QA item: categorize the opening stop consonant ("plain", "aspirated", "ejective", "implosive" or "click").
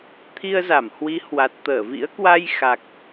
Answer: aspirated